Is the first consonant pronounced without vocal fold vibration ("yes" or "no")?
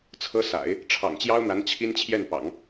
yes